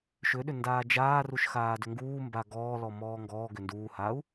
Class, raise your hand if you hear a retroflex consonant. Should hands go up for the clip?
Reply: no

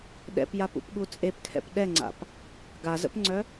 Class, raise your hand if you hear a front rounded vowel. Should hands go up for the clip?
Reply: yes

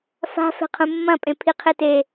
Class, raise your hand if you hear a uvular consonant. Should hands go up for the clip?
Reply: yes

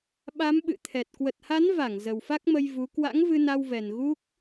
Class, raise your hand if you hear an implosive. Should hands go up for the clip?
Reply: yes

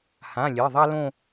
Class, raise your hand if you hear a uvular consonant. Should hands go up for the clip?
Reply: no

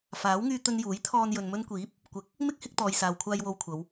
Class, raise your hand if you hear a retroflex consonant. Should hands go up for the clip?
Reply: no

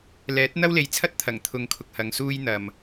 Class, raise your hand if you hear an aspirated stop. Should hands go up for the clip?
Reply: yes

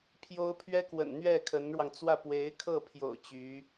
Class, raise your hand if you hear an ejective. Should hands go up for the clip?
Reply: no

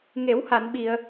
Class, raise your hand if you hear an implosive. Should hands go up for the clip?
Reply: yes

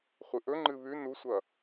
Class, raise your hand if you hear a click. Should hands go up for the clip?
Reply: yes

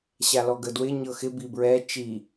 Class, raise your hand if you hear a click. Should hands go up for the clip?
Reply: no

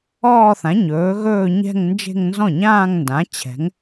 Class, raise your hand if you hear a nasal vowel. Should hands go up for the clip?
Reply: yes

